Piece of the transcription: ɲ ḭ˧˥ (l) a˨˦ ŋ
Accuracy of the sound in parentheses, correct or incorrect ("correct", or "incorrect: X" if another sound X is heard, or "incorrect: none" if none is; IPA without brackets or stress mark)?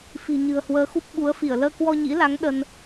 correct